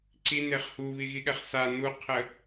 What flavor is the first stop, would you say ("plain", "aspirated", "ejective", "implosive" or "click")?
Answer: click